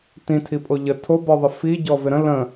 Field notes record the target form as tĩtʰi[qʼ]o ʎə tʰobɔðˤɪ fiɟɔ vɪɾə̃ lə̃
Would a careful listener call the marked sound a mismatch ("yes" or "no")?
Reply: yes